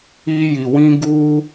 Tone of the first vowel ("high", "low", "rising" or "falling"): high